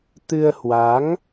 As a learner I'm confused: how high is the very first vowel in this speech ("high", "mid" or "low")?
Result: high